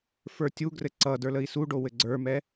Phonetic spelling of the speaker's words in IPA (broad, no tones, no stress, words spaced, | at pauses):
fə˞tʲuɡrɘ ǀʌ də˞ləi̯suɖo wɘɡ͡ǀə˞mɛ